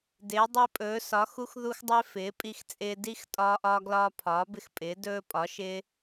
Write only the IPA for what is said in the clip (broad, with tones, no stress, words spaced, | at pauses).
dɪː˨˥dˤi˦pʼɵː˨˥ sɒ˨˥xu˦xðu˦xdˤɪː˦ fɪː˨˥pʼi˦xt͡sʼɪː˦ di˦x tʼɒː˦ʔɒː˦ɡlɒː˦ pʰɒː˨˥bɪ˦xpʼɪː˨˥ dɵː˦pʼɒ˨˥ʃɪː˦